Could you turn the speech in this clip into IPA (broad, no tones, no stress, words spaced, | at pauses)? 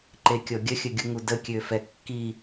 ǃekʲɔɡʲə xʲəɡʲuŋudə kʲøfɛkːi